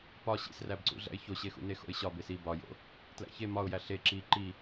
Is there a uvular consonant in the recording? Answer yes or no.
no